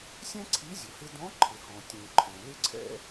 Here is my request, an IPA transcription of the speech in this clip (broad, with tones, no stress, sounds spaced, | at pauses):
sʲ ɛ̃˥ ǀʰ i˧˥ zʲ ʊ˩ h ɪ˧ d ɔ̃˧˥ ǃʰ ɪ˩ h ɔ̃˩ tʲ ũ˩ ǃʰ ɛ̃˩ l ɪ˥ ǀʰ ɛ̰˥